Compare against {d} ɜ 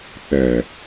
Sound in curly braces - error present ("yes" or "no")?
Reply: yes